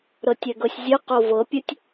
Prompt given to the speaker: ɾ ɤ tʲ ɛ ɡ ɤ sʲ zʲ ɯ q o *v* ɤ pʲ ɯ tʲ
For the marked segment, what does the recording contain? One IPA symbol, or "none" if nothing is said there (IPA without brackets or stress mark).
v